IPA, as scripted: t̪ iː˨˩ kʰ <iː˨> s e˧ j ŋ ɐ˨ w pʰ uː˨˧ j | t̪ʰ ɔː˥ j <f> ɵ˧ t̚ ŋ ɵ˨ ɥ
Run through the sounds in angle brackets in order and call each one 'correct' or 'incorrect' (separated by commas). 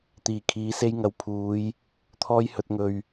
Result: incorrect, incorrect